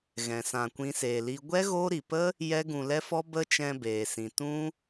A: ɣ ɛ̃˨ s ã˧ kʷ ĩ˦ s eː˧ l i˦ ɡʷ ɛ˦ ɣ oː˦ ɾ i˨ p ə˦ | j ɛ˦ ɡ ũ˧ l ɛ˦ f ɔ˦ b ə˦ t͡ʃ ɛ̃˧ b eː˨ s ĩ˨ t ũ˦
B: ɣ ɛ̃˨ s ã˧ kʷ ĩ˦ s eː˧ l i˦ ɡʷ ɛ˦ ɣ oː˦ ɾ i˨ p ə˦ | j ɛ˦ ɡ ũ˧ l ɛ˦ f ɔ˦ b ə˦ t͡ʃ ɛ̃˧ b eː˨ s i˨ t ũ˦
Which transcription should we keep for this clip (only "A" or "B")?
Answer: A